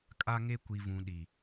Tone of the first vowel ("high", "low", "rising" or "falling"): high